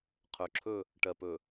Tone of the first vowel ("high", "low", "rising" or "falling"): low